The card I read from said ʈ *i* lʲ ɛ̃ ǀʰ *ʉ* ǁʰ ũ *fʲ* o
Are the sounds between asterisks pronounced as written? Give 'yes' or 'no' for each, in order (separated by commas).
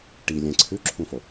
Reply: yes, yes, no